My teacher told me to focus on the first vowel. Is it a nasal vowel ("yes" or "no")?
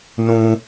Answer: yes